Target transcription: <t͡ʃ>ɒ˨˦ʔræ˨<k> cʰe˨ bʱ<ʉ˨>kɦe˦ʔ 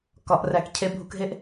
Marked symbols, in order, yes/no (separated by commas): no, yes, no